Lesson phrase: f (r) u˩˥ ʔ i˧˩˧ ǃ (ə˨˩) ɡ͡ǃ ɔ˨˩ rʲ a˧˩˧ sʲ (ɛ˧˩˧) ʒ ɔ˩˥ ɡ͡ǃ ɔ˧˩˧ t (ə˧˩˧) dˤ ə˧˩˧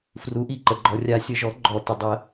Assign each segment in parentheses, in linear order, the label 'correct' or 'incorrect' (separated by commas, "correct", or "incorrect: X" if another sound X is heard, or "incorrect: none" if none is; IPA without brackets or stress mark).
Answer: correct, correct, incorrect: ə˧˩˧, incorrect: ə˨˩